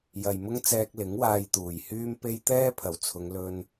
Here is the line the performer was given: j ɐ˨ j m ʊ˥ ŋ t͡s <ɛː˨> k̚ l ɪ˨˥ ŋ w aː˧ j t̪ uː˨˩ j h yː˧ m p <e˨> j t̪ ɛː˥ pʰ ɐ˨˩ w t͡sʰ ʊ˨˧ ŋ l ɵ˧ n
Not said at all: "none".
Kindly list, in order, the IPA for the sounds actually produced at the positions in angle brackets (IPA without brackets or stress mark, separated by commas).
ɛː˧, e˧